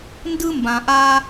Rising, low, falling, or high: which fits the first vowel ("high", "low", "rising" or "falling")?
high